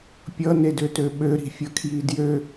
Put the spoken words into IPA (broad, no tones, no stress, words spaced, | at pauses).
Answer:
pʲʌnedøtø ɓøɾi̤fʲʌkʰji djø